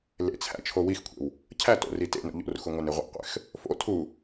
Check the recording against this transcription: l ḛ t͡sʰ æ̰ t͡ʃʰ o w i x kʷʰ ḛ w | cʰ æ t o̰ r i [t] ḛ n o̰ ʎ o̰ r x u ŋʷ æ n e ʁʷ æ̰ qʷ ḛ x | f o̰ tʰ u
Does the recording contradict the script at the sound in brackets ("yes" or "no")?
no